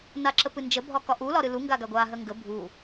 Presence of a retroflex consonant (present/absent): absent